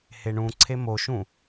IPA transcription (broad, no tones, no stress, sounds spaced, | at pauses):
h e ɳ ũ ǀʰ e m o ʃ ũ